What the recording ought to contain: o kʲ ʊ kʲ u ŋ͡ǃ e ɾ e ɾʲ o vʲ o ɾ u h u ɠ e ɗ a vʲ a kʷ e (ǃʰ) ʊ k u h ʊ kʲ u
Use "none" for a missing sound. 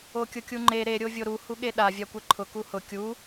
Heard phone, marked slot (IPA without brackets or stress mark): ǃʰ